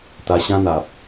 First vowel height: low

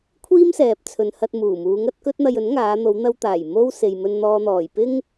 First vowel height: high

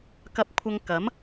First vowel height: low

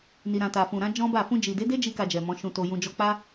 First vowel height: high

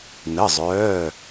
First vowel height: mid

